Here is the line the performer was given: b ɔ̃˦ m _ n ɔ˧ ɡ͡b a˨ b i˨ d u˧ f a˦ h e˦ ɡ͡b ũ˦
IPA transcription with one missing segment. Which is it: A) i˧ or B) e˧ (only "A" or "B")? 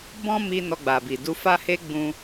A